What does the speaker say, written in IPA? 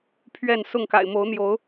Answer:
pʰɥɛ˥˨n sʊ˥˨ŋka̰˨˩ɪ̯ mo˨˦ʊ̯n̪jo˨˦ʊ̯

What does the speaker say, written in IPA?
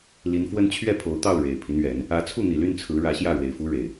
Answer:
li˨˦nfwə˦n t͡ɕʰɥɛ˥˨pʰo˨˦ʊ̯t̪ɑ˥˨ʊ̯ ɻe˨˩ɪ̯pʰi˦nɥɛ˨˦n | ä˨˦t͡sʰu˥˨n̪i˨˩ly˥˨n t͡sʰɹ̩˨˦ɻä˨˦ ɕjä˥˨ɻwe˨˩ɪ̯fu˦ ɻe˨˩ɪ̯

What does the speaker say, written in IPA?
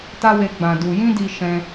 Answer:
ta˦we˧ ɡ͡bã˨ du˨ jĩ˧di˨ ʃɛ̃˧

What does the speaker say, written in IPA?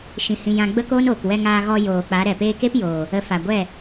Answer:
ʃĩ˨hĩ˨ jã˧ɡ͡bə˦koː˦noː˨k wɛ˧ŋaː˧ɣɔ˧ joː˨ k͡pa˨˦ɾɛ˨peː˦ ke˦p joː˨ | ə˨˦fa˨ɡʷɛ˦˨

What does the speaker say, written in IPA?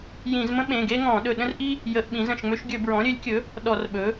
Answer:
jĩ˧˩˧zmə̃˥ ɓẽ˩˧˩ɡe˥ŋɔ̃˧˩˧ ɗɵ˧˩ɗə̃˥rʔi˥ | jə˧˩˧ʔɓĩ˩˥zə̃˧˩ʃŋ͡mø˥ʃ ɡʲɵ˧˩˧bɹɔ̃˩˥ɾʲø˩˥lʲkʲɵ˩˥ | ɗɔ˧˩˧rɓɵ˩˥

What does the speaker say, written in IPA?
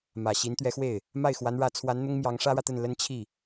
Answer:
mä˨˩ɕi˧˥nt̪ɥɛ˧˥xwe˥˩ɪ̯ | ma˥˩ɪ̯xwa˧˥nɻä˧˥t͡sʰwa˧˥n n̪ʊ˥ŋmjɑ˧˥ŋ ʂä˥ɻä˨t̪ə˥˩n lə˥nt͡ɕʰi˥˩

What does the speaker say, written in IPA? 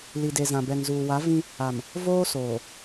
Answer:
li˨de˨zã˨ bɛ˨ŋzuː˨wa˨˦ vĩ˦ | a˨m | voː˦soː˨

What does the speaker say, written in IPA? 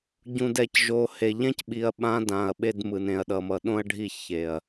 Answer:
ɟũ˨dɛ˨cʒo˨he˨ ʎɛ̃˦cɓi˨ɐ̯ ɓã˦ dã˨ɐ̯ɓe˦dmɯ˨n ẽ˨ɐ̯ɗʌ˨mʌ˨ ɗõ˦ɐ̯ɖʱi˦˨ çe˨ɐ̯

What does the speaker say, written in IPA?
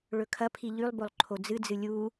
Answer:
ɭɵkʰɐpʰi ʎʉlˠbolˠ ǃʰod͡zɨd͡zɨ lʲu

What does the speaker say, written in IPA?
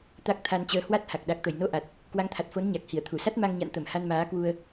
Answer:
t̪a˦˥k̚t̪ʰa˧nt͡ɕəː˧ hwa˦˥t̚ha˨˩k̚ ɗa˨˩k̚t̪ə˧˩jno˧ ʔa˨˩t̚ | kwa˨˦ŋt̪ʰa˨˩t̚fo˨˦n ɲa˨˩k̚hi˧˩ə̯t̪ʰu˧˩sa˦˥t̚ ma˧ŋɲa̰˧˨n t̪ə˧˩m ha˧nmaː˨˦kwu˧ə̯

